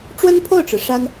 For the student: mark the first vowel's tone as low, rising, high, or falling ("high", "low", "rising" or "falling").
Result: high